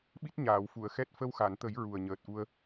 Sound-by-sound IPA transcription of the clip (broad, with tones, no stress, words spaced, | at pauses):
ɓi˦˥t̚ɲaː˨˩˨wfu˨˩˨ə̯xɛ˦˥t̚ fə˧wxa˨˩˨nt̪ə˨˩˦j ɹu˨˩ə̯ɲəː˨˩t̚ʔu˧ə̯